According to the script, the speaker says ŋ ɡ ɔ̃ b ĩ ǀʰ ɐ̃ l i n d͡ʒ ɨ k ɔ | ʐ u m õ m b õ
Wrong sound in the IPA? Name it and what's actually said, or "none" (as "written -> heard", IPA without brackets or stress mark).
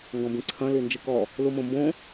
ʐ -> l